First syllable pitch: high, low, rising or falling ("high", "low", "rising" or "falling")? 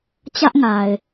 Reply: high